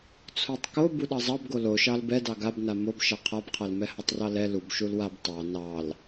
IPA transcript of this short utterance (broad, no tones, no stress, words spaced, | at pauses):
t͡sʰotˤko buɗɑzˤɑbɡo loʃɑl bɛdɑ ɡab namob ʃɑqʰabqʰalmɛ hɑtˤrɑlɛ lub ʃulwab tˤɑ nɑl